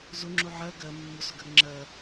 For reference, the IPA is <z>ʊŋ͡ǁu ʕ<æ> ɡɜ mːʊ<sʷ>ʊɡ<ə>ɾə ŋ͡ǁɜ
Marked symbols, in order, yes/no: yes, no, no, yes

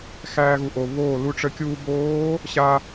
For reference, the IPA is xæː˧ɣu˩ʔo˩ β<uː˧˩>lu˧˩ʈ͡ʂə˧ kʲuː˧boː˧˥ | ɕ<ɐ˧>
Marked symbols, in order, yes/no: no, no

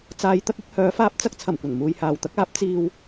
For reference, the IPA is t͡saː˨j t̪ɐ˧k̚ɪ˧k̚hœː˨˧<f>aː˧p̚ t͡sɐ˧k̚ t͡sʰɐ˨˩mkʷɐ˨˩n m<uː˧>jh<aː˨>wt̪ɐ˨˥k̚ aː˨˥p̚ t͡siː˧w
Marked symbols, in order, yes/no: yes, no, yes

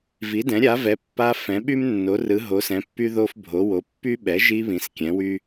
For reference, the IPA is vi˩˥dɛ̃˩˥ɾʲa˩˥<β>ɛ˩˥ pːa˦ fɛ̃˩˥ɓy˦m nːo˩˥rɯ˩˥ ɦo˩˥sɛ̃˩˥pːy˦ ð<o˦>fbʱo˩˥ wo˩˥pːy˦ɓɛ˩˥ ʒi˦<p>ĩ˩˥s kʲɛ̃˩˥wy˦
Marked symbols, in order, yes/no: no, yes, no

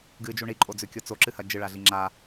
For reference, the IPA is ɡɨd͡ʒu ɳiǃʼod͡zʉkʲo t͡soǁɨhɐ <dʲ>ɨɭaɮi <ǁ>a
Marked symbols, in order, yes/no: no, no

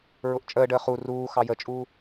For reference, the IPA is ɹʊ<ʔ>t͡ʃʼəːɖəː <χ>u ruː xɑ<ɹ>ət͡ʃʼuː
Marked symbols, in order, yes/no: yes, yes, no

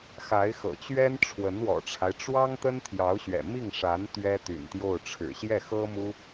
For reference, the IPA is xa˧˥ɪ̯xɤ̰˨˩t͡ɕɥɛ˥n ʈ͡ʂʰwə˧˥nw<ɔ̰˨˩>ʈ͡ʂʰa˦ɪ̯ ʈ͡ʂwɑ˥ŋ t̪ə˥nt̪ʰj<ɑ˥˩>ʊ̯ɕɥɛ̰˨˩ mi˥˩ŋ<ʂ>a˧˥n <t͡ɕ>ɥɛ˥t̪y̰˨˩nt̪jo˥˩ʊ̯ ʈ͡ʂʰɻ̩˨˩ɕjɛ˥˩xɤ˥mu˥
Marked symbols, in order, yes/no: yes, no, yes, no

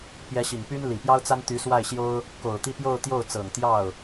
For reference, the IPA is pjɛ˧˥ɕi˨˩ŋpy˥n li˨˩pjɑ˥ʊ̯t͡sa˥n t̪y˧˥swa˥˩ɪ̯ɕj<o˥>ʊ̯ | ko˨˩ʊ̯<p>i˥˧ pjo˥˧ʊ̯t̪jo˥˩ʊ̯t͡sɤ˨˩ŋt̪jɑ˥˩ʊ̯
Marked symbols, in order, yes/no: yes, no

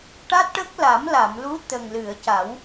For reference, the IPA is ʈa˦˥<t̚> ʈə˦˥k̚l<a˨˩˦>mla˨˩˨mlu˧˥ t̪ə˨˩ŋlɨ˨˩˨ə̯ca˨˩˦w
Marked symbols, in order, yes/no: yes, yes

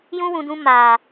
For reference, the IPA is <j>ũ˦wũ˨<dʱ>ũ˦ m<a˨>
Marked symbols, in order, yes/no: yes, no, no

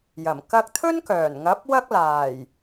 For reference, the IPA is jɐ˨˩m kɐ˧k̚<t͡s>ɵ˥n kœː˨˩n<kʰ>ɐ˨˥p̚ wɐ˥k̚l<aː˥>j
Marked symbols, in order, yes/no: no, no, no

